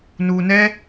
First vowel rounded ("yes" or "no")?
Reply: yes